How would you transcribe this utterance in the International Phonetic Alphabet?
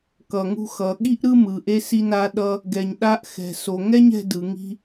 kʌ˩ŋṳ˧xʌ˩ɠi˥ʔ ɾɯ˥mɯ˩ ʔe˧si˧na˧ ɗʌ˧ | ɡɛ˩ɲɗa˧ʔ xɛ̤˩so˩ŋɛ˥ɲ ɛ̤˧dɯ˩ŋi̤˧

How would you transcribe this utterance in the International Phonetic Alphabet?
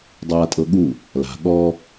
dˤaːtʼɤɠu | la̤ ɠɔ

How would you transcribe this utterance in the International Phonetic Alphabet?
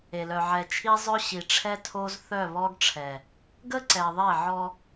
e˨lœ˨ʕɛ˨t͡ʃʰi˦ zˤœ˦ɕi˨ʈ͡ʂʰɛ˦tʰo˦z θœ˦˨βɔ˦ɡʈ͡ʂʰɛ˨ | ɡə˦ǀɛ˨ðˤe˦˨ʕɔ˦

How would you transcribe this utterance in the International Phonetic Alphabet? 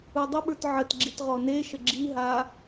udˤəɓə˞t ʕətɡ͡ǁit ʁɔneʃə ɡ͡ǁiɦa

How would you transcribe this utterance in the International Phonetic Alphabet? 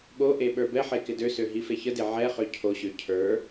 ɠoʔe ɓə˞bɛħe kɪdøsø ɦifeçəde ʕɛ χøcʰoɕø cʰə˞

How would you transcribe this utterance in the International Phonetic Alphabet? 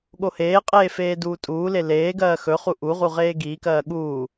ɠoheːqʼeː feːduːtʼuːle leːɡɜː xɵ χuʔuʁu ʁeːɡiːkɜː ɠuː

